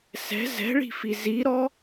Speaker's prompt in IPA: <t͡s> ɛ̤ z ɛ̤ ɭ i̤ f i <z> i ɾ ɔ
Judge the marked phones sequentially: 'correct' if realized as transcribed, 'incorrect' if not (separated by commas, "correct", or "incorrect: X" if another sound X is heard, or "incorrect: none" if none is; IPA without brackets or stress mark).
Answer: incorrect: s, correct